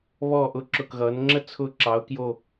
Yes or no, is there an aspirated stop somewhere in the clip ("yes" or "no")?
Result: yes